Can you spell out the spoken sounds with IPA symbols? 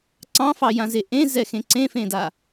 ǀ ɑ̃ f ɑ j ã z e ʔ ẽ z ɛ x ẽ ǀ ẽ f ẽ d a

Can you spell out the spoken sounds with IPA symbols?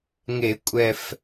ŋ e˧˩˧ kʷʼ ɛ˨˩ f

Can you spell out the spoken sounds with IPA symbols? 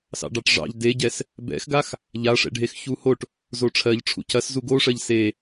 s ɑ̰ ɖ ɑ ʈ ʐ ɑ̰ ʎ d e ɟ ɛ s | b ɛ̰ x ɡ a x | ʎ a ʂ ɛ̰ ɖʱ e x ç u h o ʈ | z o ʈ͡ʂʰ ɜ ʎ ʈ͡ʂʰ ṵ cʰ ɐ s z u ɡ o ʂ ɜ ʎ s e

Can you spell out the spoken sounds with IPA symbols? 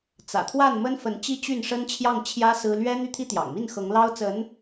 t͡s ä̰˨˩ t̪ʰ w a˥˩ n m ə˥ n f ə˧˥ n t͡ɕ i˥ t͡ɕ y˥˩ n ʂ ə˥ n t͡ɕʰ j ɑ˥˩ ŋ t͡ɕʰ j ä˥ s ɹ̩˥ l ɥ ɛ˥ n̪ y˥˩ t̪ʰ i˥ t̪ j ɑ̰˨˩ ŋ m i˥˩ n x ɤ˧˥ ŋ l ɑ˥ ʊ̯ t͡s ə˧˥ n

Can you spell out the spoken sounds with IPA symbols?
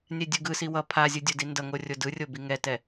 nʲ ɛ dʲ u ɡ ɯ s i w ʌ pʰ a zʲ ɯ dʲ o d i n d ʌ ŋ o rʲ o d ɯ rʲ o b i ŋ ɛ t ɛ

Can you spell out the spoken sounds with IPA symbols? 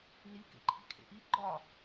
n i k ḛ ǃʰ i̤ kʰ ḛ ʔ i ɡ͡ǃ ɒ

